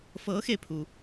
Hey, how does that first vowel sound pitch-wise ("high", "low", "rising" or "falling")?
rising